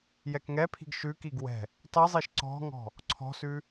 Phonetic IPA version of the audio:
j ɛ k ŋ ɛ pʰ i̤ ɡ ʃ ʉ k i ɡ w ɛ̤ | tˤ i zˤ i ʃ ǀ ɔ̤ ŋ ɔ̤ | ǀʰ ɔ̤ s ʉ

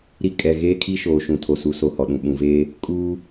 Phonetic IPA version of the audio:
ɾ i˦ kʼ ɛ˨ ɣ eː˦ kʰ i˦ ʃ oː˨ ʃ ũ˨ tʰ o˨ s u˨˦ s o˨ h ɔ˨ ɗ ũ˨ ɓ ũ˨ v eː˦ | kʼ uː˦

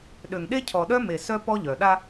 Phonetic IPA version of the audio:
ɗ ø˨ ŋ ɗ e˦ cʰ ɔ˨ ɗ œ˦ m e˨ s œ˦ p ɔ˦ ʎ œ˨ ɗ a˦

